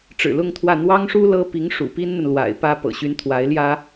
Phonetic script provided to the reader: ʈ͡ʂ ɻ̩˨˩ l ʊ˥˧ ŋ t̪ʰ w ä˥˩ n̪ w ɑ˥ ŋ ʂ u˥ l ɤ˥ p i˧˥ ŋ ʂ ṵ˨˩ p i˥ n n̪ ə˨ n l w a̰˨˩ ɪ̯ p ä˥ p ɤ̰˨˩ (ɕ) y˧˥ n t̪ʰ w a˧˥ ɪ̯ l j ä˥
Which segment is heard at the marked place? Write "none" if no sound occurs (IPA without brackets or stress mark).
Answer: ɕ